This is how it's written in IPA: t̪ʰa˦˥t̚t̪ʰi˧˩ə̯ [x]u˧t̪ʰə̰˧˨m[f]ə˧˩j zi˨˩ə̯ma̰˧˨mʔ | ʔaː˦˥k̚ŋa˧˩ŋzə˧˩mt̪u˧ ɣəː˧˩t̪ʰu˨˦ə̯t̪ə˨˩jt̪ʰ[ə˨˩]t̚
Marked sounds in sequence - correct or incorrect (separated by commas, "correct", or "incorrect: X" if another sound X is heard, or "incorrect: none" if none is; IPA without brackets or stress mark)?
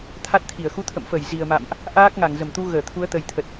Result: correct, correct, correct